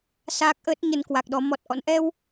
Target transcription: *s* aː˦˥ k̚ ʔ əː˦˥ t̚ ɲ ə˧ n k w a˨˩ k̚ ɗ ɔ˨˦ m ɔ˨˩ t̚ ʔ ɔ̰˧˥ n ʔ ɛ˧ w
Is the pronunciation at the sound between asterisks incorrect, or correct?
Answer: correct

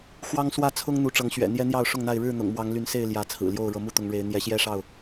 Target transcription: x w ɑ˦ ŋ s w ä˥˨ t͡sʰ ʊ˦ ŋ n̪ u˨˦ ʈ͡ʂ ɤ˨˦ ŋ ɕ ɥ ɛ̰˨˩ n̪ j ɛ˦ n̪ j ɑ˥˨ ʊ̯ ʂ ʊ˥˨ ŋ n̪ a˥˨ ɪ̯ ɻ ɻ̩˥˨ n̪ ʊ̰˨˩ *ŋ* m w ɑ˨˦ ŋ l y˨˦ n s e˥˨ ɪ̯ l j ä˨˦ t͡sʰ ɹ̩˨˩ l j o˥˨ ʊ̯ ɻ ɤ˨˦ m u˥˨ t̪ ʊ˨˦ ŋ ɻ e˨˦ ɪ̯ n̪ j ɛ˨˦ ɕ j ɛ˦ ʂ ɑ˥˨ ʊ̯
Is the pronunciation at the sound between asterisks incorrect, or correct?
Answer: correct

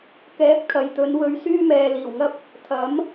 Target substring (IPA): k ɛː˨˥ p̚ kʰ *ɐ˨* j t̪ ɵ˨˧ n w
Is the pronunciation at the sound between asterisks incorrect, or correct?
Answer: correct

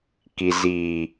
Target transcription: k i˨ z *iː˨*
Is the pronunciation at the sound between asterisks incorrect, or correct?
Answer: correct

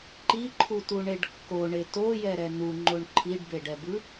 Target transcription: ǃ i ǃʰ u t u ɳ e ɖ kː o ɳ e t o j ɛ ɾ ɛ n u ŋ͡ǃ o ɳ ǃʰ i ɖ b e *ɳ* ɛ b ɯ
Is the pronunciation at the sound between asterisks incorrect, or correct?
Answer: incorrect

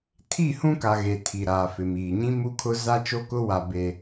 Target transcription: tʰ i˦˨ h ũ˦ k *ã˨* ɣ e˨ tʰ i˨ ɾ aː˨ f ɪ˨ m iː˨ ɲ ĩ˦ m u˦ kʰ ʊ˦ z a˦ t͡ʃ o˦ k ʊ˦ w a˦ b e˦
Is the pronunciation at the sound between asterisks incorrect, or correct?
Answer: incorrect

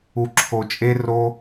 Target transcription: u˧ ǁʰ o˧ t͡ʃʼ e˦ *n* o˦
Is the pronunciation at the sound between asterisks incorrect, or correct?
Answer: incorrect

